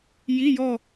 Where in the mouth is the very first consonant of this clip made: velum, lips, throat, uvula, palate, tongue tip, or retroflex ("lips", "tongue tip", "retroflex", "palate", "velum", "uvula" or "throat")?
palate